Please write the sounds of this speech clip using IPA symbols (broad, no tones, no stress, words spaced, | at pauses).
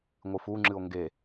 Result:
ŋʷɨfuŋ͡ǁɨo̯ ŋɡe